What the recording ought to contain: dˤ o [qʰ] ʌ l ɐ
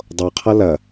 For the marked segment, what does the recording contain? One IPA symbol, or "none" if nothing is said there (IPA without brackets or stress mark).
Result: qʰ